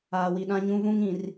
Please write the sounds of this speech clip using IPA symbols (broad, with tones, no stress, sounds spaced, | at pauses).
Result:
aː˨ w i˨ ɗ ã˦ ɲ ũ˦ v ũ˦ ŋ ĩ˨ r